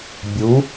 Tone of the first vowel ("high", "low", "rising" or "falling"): rising